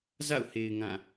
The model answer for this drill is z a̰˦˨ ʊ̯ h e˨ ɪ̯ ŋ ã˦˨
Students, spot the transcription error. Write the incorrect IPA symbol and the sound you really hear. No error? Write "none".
none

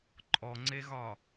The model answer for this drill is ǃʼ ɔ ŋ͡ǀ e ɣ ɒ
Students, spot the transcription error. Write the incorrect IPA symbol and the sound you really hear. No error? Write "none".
none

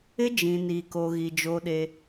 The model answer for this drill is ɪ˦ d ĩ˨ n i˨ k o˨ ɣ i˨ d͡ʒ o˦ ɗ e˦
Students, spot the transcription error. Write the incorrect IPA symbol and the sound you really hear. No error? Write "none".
d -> d͡ʒ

